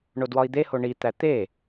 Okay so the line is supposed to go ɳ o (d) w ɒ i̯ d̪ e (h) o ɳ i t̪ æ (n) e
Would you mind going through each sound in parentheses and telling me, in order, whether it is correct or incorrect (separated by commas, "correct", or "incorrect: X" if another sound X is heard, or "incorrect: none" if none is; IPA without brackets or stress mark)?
correct, correct, incorrect: t̪